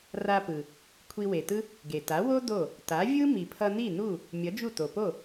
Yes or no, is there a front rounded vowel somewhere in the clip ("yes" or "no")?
no